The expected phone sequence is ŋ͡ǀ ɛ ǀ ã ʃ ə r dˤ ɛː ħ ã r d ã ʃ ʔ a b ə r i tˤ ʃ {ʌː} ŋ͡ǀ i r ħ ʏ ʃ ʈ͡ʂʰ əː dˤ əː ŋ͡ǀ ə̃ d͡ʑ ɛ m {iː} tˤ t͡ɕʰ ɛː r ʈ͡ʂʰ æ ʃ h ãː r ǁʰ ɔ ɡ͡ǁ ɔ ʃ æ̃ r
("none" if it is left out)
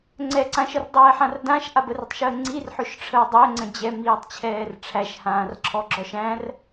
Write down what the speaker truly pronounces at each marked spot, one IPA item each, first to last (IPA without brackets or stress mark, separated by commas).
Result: əː, iː